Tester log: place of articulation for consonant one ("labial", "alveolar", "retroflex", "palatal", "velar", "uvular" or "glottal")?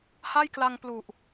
glottal